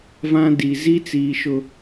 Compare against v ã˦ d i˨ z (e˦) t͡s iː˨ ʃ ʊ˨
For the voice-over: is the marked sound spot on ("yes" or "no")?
no